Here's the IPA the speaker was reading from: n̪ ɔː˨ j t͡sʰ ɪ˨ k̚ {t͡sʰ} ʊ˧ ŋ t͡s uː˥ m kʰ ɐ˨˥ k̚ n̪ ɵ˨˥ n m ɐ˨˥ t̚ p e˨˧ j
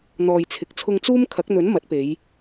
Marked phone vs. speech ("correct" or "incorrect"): correct